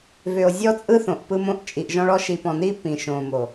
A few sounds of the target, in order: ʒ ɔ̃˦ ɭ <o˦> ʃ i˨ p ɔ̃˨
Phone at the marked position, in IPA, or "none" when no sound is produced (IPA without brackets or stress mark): ɔ˦